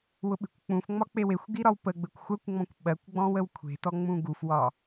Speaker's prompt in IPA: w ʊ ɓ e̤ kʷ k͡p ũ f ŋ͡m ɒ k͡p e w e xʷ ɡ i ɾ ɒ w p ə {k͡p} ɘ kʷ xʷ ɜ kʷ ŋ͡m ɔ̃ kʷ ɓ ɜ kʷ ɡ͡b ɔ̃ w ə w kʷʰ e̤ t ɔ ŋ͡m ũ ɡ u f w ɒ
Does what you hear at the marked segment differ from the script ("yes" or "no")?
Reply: yes